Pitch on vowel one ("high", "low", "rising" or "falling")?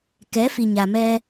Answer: rising